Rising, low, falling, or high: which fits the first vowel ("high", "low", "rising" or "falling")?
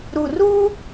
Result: low